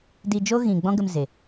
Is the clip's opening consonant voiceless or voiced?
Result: voiced